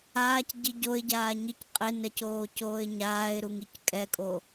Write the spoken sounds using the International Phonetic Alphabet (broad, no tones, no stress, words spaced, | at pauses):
aːcɟi ɟoɪ̯ɟaːɲic qʼenɛcoːcoːɪ̯ ɲaːɪ̯ɾuŋic kʼɛkʼo